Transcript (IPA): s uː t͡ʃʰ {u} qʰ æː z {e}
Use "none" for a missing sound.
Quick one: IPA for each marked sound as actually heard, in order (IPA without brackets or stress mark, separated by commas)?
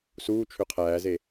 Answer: ø, e